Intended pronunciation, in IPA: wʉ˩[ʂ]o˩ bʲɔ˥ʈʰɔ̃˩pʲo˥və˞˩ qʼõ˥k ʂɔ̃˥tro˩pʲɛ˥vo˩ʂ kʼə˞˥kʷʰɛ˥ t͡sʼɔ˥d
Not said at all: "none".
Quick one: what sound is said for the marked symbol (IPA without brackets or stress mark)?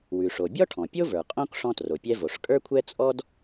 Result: ʂ